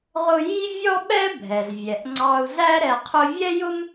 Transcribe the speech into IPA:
ʁ ʊ˥ j i˥ vʲ ɔ˥ ɓ ɛ˥ bʱ ɛ˩ z vʲ ɛ˩ ʔ ŋ͡ǀ ɑ˧ u̯ z æ˥ ɾ ɛ˧ qʰ ʊ˥ vʲ ɛ˥ j ʊ˥ m

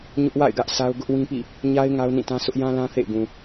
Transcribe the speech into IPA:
ɲ ʊ˦ ʔ w a̰˦˨ ɪ̯ ɡ ä˦ ʔ s a˦ ʊ̯ ɡ ʊ˦ ʔ w ĩ˦ p ḭ˦˨ | ɲ a˦ ɪ̯ ŋ a˦ ʊ̯ n ĩ˦˨ t ã˦ sʰ ʊ˦ ʔ j ã˦ l ã˦ θ ḛ˦˨ ɪ̯ ɡ ũ˨

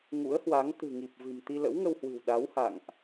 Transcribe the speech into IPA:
ŋ ṵ˧˥ ə̯ h w a˨˦ ŋ t̪ ɨ̤˨˩ ŋ i˨˩ p̚ v ɨ̤˨˩ m t̪ i˧ l ə̰˧˥ w ŋ ə˧ w h w ɨ̤˨˩ w ɗ a˨˦ w h a̰˧˨ ŋ ʔ

